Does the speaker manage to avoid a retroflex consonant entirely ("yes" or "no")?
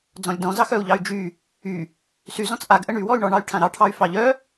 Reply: no